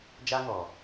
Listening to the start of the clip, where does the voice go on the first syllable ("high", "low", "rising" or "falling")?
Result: high